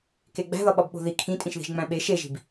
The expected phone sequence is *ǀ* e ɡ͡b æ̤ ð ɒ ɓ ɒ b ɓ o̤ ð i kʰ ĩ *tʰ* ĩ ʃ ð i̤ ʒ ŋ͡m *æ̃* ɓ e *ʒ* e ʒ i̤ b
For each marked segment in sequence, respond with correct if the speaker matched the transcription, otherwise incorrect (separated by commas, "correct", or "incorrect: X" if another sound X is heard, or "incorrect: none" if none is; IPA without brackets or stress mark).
incorrect: k, incorrect: tʼ, correct, incorrect: ʃ